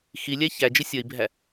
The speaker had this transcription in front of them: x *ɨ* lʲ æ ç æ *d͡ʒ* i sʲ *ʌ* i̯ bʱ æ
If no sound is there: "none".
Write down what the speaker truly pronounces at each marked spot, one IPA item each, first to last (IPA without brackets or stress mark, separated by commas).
i, d͡ʒ, ʌ